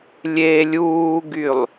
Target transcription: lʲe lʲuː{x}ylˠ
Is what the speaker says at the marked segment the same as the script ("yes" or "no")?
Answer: no